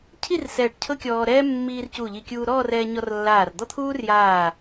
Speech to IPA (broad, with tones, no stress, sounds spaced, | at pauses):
cʰ i˥˧ r s ɛː˧˩ ʈ cʰ ɤ˥ kʲ ɔː˧ ɾ ɛː˥ mː iː˧ r c u˧˩ ʎ i˧˩ kʲ uː˧ ɾ ɔː˥˧ r ɛː˧ ɲ ɔ˧ r lː aː˧˩ r d̪ ɔ˥ t̪ʰ uː˥ r j aː˧˩